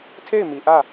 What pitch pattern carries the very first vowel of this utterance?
falling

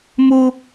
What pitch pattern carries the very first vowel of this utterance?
high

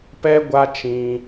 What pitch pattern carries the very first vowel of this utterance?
high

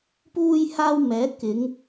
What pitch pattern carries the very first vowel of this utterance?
high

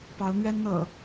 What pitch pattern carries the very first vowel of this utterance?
rising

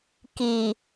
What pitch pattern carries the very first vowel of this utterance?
low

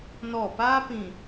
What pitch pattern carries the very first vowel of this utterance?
falling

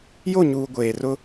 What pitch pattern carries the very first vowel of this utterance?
falling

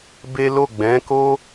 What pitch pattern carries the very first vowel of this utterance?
high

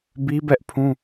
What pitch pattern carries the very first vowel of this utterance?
high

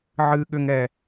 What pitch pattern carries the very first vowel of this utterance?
high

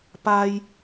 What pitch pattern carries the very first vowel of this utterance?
low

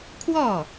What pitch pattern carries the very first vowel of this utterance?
falling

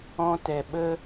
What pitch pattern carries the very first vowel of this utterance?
high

